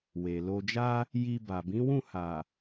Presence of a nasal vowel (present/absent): present